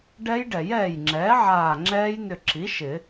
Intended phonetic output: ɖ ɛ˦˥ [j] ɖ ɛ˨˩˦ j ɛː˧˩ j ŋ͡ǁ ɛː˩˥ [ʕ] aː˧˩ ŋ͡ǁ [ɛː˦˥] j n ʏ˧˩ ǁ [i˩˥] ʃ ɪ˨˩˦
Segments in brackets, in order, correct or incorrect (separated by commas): correct, correct, correct, correct